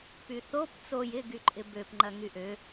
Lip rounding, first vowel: rounded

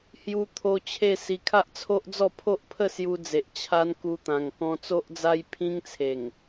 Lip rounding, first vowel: rounded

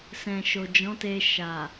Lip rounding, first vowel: unrounded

